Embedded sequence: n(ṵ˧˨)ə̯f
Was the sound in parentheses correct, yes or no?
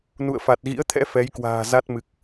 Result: yes